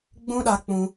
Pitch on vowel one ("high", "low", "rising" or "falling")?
high